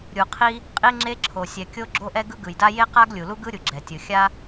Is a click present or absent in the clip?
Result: present